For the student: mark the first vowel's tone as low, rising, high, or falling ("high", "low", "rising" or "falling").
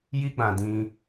high